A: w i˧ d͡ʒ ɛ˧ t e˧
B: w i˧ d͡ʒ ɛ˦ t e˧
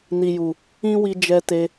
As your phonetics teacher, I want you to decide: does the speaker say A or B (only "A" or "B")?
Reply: A